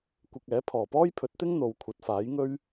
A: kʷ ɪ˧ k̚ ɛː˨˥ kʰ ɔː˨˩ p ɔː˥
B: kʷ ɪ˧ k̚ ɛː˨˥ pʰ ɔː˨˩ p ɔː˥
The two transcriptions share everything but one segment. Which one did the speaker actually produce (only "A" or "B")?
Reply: B